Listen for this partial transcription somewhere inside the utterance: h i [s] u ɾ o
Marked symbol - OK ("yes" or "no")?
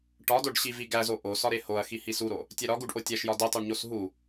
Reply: yes